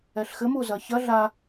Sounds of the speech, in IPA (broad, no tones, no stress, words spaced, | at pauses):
ɛɬxɘm uzɐçɐ ɮa